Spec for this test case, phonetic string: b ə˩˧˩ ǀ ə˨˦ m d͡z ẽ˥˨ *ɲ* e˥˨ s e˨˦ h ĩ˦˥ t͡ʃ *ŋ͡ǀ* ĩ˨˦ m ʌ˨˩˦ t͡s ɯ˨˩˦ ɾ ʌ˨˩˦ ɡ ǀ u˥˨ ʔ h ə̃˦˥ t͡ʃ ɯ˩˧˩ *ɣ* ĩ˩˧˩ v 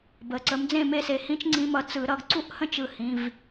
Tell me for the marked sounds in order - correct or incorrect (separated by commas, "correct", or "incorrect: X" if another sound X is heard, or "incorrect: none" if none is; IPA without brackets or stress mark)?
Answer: incorrect: m, correct, incorrect: h